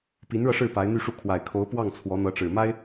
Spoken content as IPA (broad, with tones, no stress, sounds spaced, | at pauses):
p i˧˥ n ɻ ɤ˧ ʂ ɻ̩˥˩ p a˧˥ ɪ̯ n̪ y˥˧ ʂ u˥˩ kʰ w a˨˩ ɪ̯ kʰ o˧˥ ʊ̯ p w ɑ˥˩ ŋ t͡sʰ w ɔ˧˥ n̪ ɤ˧˥ ʈ͡ʂ ɻ̩˨˩ m a˥ ɪ̯